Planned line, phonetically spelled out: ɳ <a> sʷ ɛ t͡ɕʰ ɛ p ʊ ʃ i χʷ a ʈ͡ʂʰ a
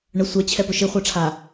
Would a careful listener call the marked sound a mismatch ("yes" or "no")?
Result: yes